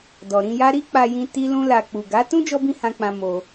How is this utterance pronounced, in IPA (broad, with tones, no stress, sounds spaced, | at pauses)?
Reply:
d ɔ˨ ɾ ĩ˧ j a˦ ɾ i˦ k͡p a˧ j ĩ˧ t i˦ l ũ˦ l a˧ k͡p u˨ ɡ a˨˦ t ũ˦ d͡ʒ ɔ˦ b ĩ˦ h ã˧ k͡p ã˧ m o˧